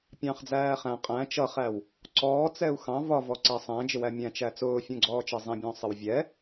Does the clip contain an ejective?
yes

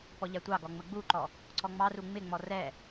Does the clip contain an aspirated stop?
no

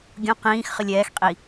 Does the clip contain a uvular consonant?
yes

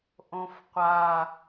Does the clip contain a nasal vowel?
yes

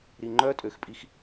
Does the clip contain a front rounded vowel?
yes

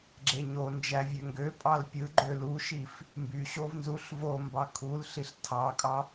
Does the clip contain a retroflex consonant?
no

